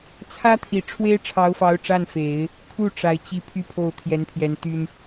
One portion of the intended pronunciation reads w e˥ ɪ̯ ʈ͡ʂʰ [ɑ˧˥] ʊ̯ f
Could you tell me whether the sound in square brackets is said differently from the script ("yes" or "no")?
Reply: no